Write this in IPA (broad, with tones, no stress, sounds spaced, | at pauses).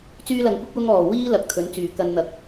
t͡s yː˥ l ɐ˧ ŋ kʷ ɪ˥ k̚ w ʊ˥ ŋ ɔː˨˩ w iː˥ l ɐ˧ k̚ t̪ʰ ɵ˨˥ n t͡s yː˨˩ k ɐ˧ n n̪ ɐ˨˥ k̚